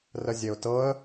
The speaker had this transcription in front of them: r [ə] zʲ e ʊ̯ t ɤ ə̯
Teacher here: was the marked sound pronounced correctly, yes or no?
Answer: yes